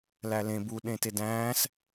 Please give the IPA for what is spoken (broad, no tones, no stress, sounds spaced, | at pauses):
l æ l ẽ b u ɗ ẽ t e d æ̃ː s